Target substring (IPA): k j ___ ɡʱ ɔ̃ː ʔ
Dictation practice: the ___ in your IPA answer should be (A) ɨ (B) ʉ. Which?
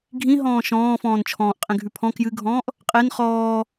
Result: A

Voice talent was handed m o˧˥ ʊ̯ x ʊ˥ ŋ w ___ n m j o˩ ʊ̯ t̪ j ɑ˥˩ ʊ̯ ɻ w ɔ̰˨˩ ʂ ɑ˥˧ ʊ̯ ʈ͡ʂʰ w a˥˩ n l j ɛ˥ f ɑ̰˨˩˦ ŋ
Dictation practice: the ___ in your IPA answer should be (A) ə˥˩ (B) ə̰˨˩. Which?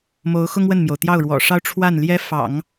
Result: A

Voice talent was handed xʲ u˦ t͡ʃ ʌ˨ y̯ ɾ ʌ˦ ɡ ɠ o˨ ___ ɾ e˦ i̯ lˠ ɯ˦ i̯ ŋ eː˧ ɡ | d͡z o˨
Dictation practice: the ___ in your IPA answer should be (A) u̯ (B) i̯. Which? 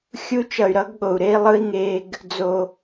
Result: A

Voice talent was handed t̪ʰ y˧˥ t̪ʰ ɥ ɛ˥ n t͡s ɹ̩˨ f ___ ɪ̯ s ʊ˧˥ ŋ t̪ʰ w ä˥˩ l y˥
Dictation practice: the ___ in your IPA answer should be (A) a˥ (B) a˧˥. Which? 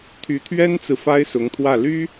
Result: A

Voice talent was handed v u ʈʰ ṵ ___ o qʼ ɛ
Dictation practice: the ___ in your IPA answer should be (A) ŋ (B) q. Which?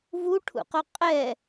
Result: B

